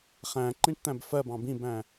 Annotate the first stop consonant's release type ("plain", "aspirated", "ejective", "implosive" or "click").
click